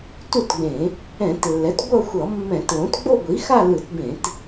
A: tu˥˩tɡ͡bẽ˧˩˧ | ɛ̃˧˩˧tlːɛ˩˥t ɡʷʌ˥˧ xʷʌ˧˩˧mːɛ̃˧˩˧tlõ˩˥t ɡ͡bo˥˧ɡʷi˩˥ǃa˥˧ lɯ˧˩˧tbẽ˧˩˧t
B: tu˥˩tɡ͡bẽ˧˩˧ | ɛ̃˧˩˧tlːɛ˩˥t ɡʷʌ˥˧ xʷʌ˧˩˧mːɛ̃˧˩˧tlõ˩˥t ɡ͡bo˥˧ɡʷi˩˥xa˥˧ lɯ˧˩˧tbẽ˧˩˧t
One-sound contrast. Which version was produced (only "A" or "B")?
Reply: B